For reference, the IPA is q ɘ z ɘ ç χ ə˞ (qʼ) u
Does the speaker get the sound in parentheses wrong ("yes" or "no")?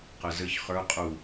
no